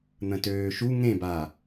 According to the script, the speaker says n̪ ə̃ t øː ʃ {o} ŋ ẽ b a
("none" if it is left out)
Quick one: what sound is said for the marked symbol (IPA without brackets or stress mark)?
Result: u